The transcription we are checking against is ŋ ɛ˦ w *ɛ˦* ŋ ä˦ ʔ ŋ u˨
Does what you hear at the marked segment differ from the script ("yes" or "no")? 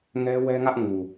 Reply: no